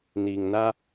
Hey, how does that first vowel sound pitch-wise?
low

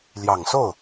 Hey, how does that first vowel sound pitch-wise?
low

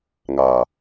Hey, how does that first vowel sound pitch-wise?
low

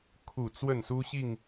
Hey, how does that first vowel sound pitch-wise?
falling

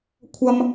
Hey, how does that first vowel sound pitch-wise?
high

